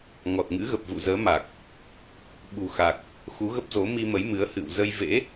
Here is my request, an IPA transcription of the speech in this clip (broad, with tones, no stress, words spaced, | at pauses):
ŋɔ˨˩t̚ŋɨ̰˧˥ ɣə˨˩p̚vṵ˧˨zəː˨˦ ma˨˩k̚ | ɓṳ˨˩ xa˨˩k̚ | xu˨˦ɣə˦˥p̚zo˨˦ mi˧mə˨˦jmɨ˨˦ə̯ hɨ̰˧˨w zə˧jvḛ˧˥